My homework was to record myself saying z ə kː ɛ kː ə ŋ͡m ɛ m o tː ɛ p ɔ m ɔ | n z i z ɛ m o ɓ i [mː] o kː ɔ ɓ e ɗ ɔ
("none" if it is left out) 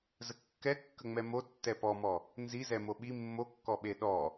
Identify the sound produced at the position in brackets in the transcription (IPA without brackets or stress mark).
mː